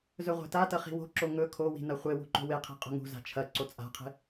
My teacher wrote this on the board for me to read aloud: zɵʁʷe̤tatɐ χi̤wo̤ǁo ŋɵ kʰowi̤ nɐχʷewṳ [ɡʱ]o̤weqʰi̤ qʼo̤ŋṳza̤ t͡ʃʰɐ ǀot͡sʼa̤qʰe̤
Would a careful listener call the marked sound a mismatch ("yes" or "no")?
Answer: yes